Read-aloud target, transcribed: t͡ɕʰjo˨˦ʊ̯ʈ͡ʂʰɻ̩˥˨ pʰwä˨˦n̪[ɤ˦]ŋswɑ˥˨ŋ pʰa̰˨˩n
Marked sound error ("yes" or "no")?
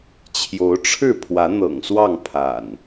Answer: yes